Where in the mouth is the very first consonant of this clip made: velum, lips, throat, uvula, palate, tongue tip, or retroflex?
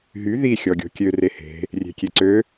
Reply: throat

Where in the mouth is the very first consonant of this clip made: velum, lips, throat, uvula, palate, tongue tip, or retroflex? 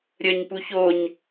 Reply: tongue tip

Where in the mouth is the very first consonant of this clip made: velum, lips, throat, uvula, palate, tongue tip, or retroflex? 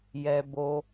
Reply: palate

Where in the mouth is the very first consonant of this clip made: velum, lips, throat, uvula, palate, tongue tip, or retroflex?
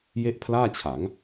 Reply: palate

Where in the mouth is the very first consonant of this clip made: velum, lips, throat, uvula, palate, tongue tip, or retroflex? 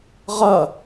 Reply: uvula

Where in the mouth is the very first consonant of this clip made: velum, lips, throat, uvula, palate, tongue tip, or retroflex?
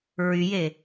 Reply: tongue tip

